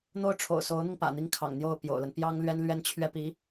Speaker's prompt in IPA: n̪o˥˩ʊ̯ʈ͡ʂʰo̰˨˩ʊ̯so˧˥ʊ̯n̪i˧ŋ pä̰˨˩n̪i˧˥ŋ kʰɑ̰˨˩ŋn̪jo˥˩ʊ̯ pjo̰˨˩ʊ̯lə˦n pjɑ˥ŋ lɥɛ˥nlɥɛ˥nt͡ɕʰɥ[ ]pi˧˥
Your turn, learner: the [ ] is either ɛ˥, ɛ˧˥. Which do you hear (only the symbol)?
ɛ˥